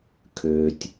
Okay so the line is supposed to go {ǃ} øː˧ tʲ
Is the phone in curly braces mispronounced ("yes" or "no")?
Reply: yes